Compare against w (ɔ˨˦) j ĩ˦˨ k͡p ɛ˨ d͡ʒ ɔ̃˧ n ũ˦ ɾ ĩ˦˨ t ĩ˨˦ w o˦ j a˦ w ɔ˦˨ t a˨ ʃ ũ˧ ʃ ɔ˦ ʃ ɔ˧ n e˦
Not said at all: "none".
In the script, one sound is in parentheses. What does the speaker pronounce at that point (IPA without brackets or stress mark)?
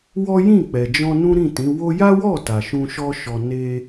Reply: ɔ˦